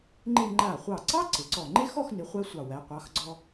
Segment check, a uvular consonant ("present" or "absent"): present